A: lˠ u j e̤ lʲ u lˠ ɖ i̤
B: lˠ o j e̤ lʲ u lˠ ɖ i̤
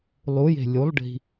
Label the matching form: A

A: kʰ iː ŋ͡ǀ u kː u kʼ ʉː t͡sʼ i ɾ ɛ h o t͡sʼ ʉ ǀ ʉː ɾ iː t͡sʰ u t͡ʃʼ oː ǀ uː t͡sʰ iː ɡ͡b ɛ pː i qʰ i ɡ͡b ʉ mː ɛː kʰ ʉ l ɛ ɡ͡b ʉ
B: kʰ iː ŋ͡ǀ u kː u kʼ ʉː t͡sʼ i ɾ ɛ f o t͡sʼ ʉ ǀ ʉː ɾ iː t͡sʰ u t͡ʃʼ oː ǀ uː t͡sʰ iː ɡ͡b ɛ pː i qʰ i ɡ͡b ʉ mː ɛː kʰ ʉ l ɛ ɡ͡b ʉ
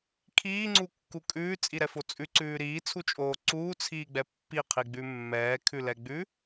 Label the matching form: B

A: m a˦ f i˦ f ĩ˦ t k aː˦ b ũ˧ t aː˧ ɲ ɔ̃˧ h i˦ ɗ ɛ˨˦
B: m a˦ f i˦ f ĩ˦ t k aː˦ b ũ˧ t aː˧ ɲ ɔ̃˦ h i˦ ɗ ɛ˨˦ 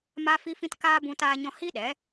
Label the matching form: A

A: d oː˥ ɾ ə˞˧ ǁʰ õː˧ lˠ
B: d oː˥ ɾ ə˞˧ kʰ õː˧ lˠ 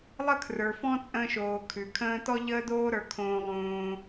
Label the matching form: B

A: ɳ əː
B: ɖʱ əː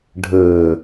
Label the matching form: B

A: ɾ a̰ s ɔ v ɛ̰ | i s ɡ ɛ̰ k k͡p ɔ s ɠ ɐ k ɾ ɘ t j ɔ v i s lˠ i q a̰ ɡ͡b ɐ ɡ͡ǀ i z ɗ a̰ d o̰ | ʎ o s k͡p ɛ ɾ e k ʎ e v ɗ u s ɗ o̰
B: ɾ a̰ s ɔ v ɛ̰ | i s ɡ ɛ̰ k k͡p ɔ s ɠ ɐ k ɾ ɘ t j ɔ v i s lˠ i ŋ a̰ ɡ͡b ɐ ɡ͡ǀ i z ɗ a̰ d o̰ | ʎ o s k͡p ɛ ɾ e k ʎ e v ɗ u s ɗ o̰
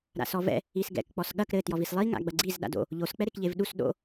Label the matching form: B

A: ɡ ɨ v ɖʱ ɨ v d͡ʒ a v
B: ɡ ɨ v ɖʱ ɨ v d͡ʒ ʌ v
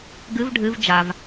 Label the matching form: A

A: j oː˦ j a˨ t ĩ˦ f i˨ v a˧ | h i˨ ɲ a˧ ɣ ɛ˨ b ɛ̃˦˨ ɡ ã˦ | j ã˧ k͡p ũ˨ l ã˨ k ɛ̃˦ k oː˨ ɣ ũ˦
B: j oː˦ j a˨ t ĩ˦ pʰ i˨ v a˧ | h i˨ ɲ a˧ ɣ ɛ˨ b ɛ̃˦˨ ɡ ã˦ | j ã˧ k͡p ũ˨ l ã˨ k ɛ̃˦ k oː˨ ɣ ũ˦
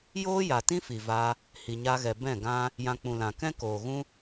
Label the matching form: A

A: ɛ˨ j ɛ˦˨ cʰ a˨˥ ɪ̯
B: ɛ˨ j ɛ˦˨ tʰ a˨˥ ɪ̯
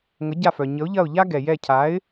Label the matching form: A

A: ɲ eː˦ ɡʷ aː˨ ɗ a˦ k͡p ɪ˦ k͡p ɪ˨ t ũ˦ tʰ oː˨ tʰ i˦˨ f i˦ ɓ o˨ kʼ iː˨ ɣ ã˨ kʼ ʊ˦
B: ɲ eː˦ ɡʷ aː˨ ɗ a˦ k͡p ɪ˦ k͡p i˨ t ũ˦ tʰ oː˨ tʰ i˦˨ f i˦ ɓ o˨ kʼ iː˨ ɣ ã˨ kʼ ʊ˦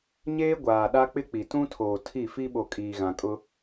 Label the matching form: B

